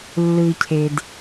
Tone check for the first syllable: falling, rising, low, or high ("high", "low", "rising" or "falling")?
low